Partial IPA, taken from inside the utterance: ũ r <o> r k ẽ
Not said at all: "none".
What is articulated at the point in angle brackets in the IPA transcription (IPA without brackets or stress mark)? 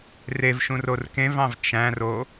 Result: o